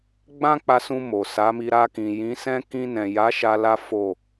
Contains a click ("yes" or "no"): no